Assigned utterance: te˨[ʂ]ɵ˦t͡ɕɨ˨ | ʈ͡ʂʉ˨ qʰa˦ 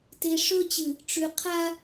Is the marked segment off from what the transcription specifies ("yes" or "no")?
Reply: no